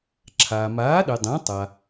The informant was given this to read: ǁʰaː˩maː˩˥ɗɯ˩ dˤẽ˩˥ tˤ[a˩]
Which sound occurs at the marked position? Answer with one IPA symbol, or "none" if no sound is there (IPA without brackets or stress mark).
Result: a˩